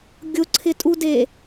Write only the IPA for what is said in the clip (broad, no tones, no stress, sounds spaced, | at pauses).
ɡʲ ʊ ǀʰ ɪ tʼ u d e